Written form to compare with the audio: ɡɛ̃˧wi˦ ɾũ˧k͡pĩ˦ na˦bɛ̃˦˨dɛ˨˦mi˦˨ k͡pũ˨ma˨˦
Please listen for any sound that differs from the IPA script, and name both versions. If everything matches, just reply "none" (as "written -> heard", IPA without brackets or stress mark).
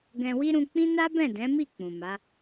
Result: ɛ˨˦ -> ɛ̃˨˦